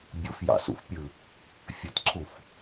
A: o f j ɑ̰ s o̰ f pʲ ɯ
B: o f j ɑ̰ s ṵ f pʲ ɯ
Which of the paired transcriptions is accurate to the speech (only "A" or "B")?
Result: B